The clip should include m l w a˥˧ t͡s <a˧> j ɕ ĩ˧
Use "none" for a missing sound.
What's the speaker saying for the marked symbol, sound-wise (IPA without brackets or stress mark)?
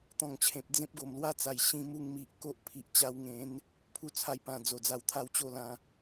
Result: a˨˩